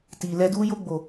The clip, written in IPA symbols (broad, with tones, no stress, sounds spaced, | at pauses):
t i˨ l ɛ˧ d u˧ j o˧ ɡ͡b o˨